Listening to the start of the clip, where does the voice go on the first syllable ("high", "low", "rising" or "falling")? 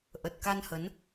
low